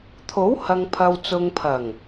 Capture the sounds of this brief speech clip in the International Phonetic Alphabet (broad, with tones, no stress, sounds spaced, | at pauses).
t̪ʰ o˨˥ w h ɐ˨ ŋ pʰ ɐ˨ w t͡s ʊ˨ ŋ pʰ ɐ˨˩ ŋ